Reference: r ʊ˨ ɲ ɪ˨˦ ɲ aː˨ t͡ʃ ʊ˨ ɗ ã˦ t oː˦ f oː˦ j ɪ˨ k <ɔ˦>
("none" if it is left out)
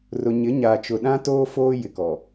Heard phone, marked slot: ɔ˨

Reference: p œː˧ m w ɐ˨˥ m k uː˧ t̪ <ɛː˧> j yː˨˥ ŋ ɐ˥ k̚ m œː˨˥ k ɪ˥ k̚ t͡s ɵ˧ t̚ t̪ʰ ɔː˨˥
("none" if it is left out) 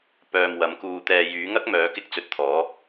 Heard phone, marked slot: ɛː˧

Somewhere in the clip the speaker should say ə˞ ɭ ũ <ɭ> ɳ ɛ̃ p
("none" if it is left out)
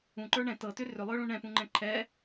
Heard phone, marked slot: none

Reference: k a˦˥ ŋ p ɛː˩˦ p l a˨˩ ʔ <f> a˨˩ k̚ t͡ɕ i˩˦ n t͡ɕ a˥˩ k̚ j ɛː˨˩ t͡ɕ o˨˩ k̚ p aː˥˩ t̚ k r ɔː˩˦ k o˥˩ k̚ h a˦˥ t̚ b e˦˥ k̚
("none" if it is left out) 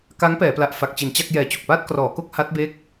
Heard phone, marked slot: f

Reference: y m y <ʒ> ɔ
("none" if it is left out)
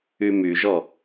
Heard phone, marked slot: ʒ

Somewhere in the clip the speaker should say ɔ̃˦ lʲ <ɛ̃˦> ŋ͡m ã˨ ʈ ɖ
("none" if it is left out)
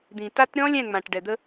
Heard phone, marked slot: ɛ̃˦˨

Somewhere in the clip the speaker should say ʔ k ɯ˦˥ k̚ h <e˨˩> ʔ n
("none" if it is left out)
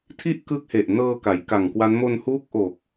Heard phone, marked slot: e˨˩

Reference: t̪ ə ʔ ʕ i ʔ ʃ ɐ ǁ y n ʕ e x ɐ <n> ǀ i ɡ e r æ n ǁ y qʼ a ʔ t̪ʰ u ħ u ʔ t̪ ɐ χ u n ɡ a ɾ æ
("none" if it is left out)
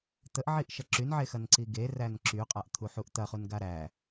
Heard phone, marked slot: n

